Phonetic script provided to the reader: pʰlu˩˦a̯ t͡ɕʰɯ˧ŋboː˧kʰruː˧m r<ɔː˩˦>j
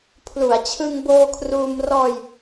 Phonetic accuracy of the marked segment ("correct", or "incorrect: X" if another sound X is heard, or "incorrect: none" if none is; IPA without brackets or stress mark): incorrect: ɔː˧